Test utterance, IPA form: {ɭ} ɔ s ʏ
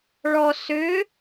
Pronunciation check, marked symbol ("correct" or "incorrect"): correct